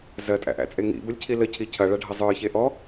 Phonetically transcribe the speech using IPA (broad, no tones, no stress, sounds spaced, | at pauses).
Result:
z ɜ tʼ æ̰ ʔ æ̰ t͡sʼ e ŋ ḭ b ə lʲ cʰ i l ə cʰ i cʰ ɐ ɭ ɐ ɖʱ ɐ zˤ ə˞ ç e ʔ ɔ